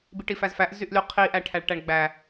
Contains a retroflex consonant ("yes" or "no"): yes